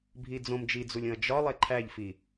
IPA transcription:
bʱ i d͡z õ m d͡ʒ i d͡z u lʲ õ ɐ̯ d͡ʒ ɒ lˠ e ǃʰ æ ʎ f i

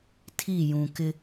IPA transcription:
tʰ i˦˨ j ũ˨ k ɪ˦

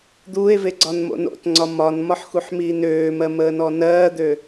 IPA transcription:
d̪ uː e̯ v e ɡ͡ǀ ɒ n m o̰ n o̰ t ŋ͡ǀ ɒ m ɒ n m ɒ ħ x u ħ m iː n øː m ɜ m əː n ɔ n ɜː d̪ ø

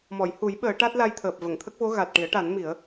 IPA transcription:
m ɔ˨˩˨ j h u˨˩˦ j ɓ əː˨˩˦ ʈ a˦˥ t̚ l a˧ j t̪ʰ əː˨˩ p̚ v ə˨˩˨ ŋ t̪ʰ ə˦˥ k̚ v o˧˥ ɣ a˨˩ t̚ ʈ i˨˩˦ ə̯ ʈ a˨˩˦ n m i˨˩˦ ə̯

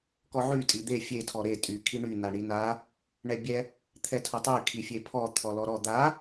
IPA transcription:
k ɔ ʕ y tʼ i d̪ e fʲ e tʰ ɔ ɾ e tʼ y kʰ i ɳ y n a ɳ i n a | ɳ ɛ bʲ ɛ | t̪ʰ ɛ tʰ o tˤ y kʰ i fʲ e pʰ ɔ t̪ʰ ɔ l ɔ ɾ ɔ d̪ a

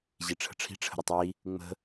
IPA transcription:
ʑ i ʈ͡ʂʰ ə̤ ʈ͡ʂʰ i̤ ʈ͡ʂʰ ə̤ ɾ ə tˤ i | ŋ͡m ə̤

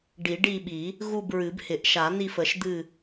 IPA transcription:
ɖ i˨˩˦ ɖ i˦˨ ɓ i˨˩˦ | ɣ u˦˨ b ɹ ɨ˨˩˦ b h ɪ˨˩˦ ʔ ʃ a˨˩˦ n̪ i˦˨ f ə˨˩˦ ʃ d̪ ɨ˦˨

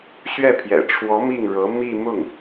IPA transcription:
ɕ ɥ ɛ˥˩ pʰ j ɛ̰˨˩ ʈ͡ʂʰ w ɔ˧˥ m i˥˩ ŋ ɻ ɤ˧˥ m i˥˧ m ʊ˥˩ ŋ

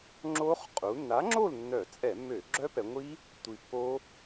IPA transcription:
ŋ͡ǁ o˦˥ χ qʼ u˩˧ nː a˨˥ ŋ͡ǁ o˥˨ l nː œ˧˩˧ t͡sʼ ɛ˧˩˧ mː ø˧˩˧ ɡ͡ǁ œ˦˥ p ɛ˩˧ ŋʷ i˦˥ | tʷ i˨˩ pː o˦˥

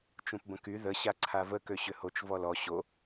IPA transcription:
t͡ʃ ũ p b ə̃ k y ð ə ɕ a ǀʰ a v ə k ø ɕ ʏ h o t͡ʃ v ɔ l ɔ ɕ o

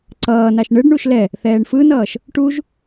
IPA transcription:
ǀ ʌː n a ʃ ɳ ɯ ɖ ɳ u ʃ l ɛ | θ ɛː ɳ f ɯ n ʌː ʃ | ʈ u ʒ

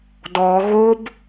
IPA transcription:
d ɔ ɣ o b

